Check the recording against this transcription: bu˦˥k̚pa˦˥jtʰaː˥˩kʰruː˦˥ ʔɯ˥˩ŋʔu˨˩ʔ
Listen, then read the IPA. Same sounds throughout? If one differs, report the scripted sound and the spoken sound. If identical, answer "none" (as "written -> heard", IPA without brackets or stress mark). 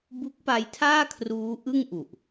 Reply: none